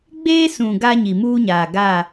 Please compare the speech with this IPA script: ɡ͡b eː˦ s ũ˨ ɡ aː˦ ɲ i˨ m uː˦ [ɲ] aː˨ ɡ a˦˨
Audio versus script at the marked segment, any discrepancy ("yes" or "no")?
no